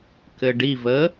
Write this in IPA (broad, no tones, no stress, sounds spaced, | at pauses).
k ɘ ɖ i v ə